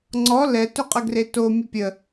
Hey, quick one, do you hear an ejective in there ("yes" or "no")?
yes